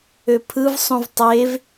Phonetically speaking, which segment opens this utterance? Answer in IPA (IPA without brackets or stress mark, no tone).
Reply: ø